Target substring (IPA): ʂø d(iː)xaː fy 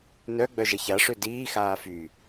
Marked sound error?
no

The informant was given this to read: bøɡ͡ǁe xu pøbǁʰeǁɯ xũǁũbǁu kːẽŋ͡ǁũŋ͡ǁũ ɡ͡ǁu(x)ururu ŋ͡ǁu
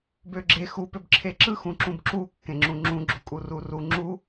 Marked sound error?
yes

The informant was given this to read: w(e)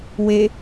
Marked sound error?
no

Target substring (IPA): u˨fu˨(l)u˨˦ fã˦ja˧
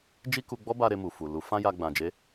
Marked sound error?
no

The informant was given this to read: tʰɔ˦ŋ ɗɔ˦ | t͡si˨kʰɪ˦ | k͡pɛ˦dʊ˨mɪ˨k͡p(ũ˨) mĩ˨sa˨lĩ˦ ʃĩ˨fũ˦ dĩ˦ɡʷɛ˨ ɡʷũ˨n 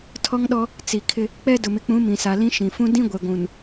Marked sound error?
yes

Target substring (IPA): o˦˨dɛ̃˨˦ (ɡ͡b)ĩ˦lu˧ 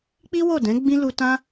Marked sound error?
no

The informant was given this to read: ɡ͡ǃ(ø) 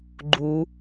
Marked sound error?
yes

